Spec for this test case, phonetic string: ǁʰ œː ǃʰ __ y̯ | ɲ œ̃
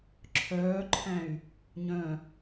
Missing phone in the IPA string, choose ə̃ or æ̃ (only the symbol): æ̃